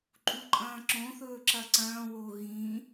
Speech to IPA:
ǃʼ u ǃʼ ɐ̃ː ǁ õ θ ɵː ǁ ɐ ǀ ɐ̃ː w o ɣ ĩ

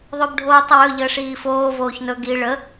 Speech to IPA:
ðˤ o b ɖʱ oː tˤ ə w ɵ ʎ əː ʂ iː f oː v oː ç n ɵ ɡ i ɭ ə

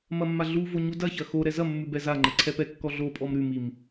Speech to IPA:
m ɐ mː a ɮ u v o ɲ u d ɐ ç ɐ x o ɾ ɛ z ɐ mː ʉ b ɛ z a ŋ͡ǃ ɐ ǀʰ ɛ p ɛ kː ɔ ɮ o pʼ ɔ m ɾ ʉ m i m

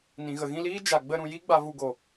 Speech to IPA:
n ĩ˨ ɣ ə˨ ɣ ĩ˧ l iː˦ d͡ʒ a˨ ɡ͡b ə˧ ɾ ũ˨ j i˦ ɡ͡b a˧ v u˧ ɡ o˨

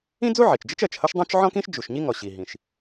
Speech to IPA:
ĩ˥ d͡z u˥ ʕ i˩ t͡ʃ d͡ʒ ɪ˥ t͡ʃ ɜ˩ t͡ʃ h ʌ˥ ʃ dˤ ũ˥ t͡ʃ ʕ ɔ̃˥ k ĩ˥ ʃ d͡ʒ u˩ ʃ ɲ i˥ ŋ ɔ˩ ɕ i˩ ɦ ĩ˩ ʃ

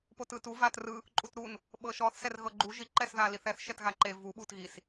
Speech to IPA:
p o t ɯ t u v a t r ɯ | ǃʼ u t ɾ u n | ɓ ɤ ʃ ɔ θ s ɛ r ɣ ɤ ɡ͡ǃ u ʒ i ǃ ɛ s ð a l i θ ɛ θ ʃ ɛ t ɣ a ǃ e v u ɓ u t ɣ i s

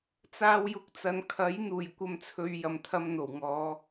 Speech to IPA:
t͡s aː˧ w j ʊ˨˥ k̚ t͡s ɐ˨ n kʰ ɐ˨˥ j n̪ uː˨˩ j kʷ ɐ˧ m t͡sʰ ɵ˨˧ ɥ j ɐ˨ m t̪ʰ ɐ˧ m n̪ o˨˩ w ŋ ɔː˨˧

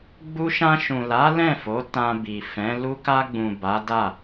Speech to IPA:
ɡ͡b u˧ ʃ ã˧ ʃ ũ˨ l a˨˦ l ɛ̃˦˨ f o˨˦ t ã˧ b i˨ f ɛ̃˨˦ l u˦ k a˧ ɡ͡b ũ˨ b a˨˦ d a˦˨

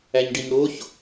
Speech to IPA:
æ ɲ ɖ i ɲ ɽ o ç

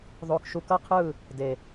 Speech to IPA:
ðˤ o˨ k ʃ u˨ k ʌ˦˨ qʰ ɯ˦˨ | d e˨

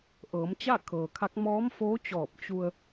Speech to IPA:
ʔ ɤː˩˧ m t͡ɕ a˥˨ kʰ ɤː˩ kʰ a˧˥ k̚ m ɔː˧˥ m f oː˧˥ t͡ɕ ɔː˧˩ p̚ t͡ɕ u˧ ə̯

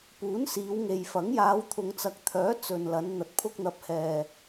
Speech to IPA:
p uː˨˥ n s iː˨˧ w ŋ e˨ j f ɐ˨˥ ŋ j aː˨˧ w t̪ʰ ʊ˨ ŋ t͡s ɐ˨˥ k̚ t̪ʰ œː˨˥ t͡s ɵ˨ n l ɐ˨˧ n n̪ ɐ˨ t̚ pʰ ʊ˧ k̚ n̪ ɐ˨˥ p̚ h ɛː˨

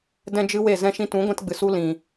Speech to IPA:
d ɛ̃˦ d͡ʒ ɨ˦ w e˦˨ z ɛ̃˧ ʃ ĩ˧ t ũ˨˦ ɡʷ ɛ̃˦ t ɡ͡b ɨ˨ s u˦ l ĩ˨

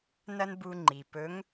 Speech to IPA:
n ɐ˥ n b u˧ ŋ͡ǃ i˩ p ɵ˧˥ ŋ

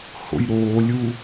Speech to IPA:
h o̰ j ɾ oː lʲ uː

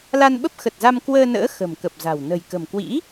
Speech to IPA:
l a˧ n ɓ ə˦˥ p̚ x ə˨˩ t̚ z a˧ m k w əː˧ n ə̰ː˧˥ x ə̤˨˩ m k ə˨˩ p̚ z a̤˨˩ w n ə̤˨˩ j k ə̤˨˩ m k w ḭ˧˥

